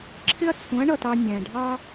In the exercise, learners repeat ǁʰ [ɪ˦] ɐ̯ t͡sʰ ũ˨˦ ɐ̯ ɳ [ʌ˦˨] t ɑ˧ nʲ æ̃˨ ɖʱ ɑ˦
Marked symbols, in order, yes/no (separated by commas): yes, yes